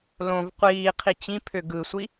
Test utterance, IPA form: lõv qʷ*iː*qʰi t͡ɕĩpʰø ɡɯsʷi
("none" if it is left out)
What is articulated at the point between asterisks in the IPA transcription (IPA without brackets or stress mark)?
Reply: iː